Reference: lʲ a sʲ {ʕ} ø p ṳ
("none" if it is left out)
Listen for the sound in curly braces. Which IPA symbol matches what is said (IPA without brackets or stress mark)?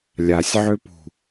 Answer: ʕ